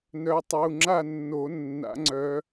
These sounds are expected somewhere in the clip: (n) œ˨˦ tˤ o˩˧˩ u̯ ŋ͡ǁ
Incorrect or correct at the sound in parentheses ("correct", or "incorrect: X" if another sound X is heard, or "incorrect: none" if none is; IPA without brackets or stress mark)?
correct